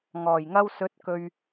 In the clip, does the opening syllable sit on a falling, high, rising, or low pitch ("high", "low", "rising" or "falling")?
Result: low